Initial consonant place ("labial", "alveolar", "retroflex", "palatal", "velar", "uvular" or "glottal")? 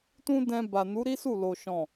alveolar